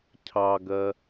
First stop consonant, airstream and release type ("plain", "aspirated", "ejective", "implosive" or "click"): aspirated